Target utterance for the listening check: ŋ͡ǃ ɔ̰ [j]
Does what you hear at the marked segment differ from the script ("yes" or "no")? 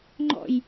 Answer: no